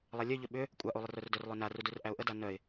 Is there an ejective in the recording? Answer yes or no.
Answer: yes